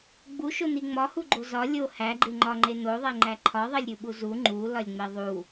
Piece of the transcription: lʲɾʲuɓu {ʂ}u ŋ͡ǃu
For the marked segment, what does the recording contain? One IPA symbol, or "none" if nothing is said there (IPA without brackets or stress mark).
z